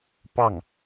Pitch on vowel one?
falling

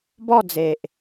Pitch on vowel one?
falling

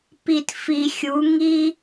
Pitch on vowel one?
low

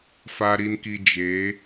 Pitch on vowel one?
low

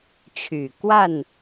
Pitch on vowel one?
low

